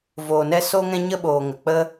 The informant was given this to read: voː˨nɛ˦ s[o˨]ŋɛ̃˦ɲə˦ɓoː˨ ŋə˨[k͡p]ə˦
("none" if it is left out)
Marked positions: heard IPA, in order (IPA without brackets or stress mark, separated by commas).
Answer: o˦, k͡p